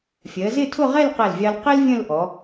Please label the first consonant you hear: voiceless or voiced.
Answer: voiceless